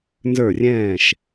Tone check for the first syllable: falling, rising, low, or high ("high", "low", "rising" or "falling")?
falling